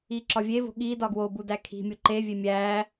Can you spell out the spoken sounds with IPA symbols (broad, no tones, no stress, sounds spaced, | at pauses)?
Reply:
i ǁ ɒ vʲ e v o̤ ɠ i d ɒ ɡ w o b u d æ kʰ i̤ mʲ o ǃ e vʲ e mʲ æ